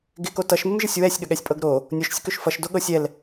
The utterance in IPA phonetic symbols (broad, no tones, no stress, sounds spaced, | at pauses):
ɡ ɪ k o t ʌ ʃ m ɪ m ʒ ə sʲ w ɛ sʲ ɠ ə ɠ ɛ sʲ pʼ ɤ ɡ ɾ o | nʲ o ʃ sʲ ə k ø ʃ f ʌ ʃ d o ɠ ɤ sʲ ɛ l